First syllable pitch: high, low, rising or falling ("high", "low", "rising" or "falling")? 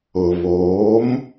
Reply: low